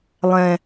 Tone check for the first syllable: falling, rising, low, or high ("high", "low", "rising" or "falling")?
low